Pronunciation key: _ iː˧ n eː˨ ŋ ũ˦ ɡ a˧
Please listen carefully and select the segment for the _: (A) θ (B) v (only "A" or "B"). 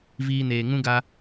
B